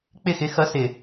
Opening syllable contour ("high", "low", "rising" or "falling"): falling